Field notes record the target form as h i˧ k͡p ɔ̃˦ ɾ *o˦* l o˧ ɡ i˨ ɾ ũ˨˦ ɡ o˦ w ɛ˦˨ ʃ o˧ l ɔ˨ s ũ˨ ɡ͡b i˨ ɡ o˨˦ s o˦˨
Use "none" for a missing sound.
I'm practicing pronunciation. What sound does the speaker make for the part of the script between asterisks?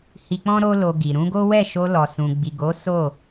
o˦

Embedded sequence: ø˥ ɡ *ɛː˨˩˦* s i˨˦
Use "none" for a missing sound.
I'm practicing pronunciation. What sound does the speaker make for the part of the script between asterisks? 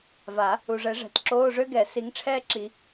ɛ˨˩˦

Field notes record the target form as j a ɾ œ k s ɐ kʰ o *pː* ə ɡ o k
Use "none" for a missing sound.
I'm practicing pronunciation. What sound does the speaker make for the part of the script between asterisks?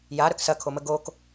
m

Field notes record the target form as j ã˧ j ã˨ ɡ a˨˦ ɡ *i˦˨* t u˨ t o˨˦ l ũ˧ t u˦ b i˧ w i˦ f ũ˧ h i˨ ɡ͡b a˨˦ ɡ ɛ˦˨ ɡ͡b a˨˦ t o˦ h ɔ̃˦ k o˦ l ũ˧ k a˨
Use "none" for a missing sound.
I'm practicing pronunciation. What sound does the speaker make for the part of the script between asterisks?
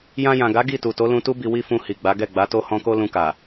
i˦˨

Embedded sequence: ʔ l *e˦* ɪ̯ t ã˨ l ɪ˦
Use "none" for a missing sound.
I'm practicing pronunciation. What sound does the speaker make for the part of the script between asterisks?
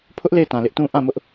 e˦˨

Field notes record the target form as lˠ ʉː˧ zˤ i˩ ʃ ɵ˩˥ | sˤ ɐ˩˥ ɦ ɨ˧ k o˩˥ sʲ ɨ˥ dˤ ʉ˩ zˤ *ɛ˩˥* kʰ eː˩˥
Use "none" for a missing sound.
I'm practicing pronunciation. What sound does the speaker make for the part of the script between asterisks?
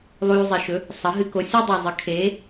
ɨ˩˥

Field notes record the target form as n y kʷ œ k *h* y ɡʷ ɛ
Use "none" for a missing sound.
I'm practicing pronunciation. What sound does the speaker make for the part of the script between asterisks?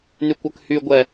h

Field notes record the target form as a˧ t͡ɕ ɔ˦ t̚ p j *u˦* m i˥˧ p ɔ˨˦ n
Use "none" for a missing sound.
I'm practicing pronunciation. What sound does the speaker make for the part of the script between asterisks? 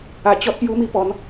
u˦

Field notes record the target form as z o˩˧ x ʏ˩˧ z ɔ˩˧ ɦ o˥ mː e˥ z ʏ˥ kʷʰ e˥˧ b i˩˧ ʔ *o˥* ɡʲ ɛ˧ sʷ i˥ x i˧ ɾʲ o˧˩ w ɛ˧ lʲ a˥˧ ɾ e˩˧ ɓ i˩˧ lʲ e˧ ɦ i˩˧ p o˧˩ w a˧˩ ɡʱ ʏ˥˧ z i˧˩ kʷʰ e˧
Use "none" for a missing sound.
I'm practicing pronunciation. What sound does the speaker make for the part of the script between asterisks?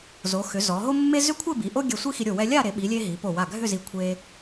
o˥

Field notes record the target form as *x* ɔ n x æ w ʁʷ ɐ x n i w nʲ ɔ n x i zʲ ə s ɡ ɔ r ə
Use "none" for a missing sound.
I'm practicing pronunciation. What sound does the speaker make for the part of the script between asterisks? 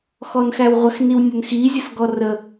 x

